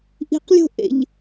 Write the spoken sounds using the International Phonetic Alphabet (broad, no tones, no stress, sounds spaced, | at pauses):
ʔ i̤ q lʲ o̤ ʔ ḛ ʎ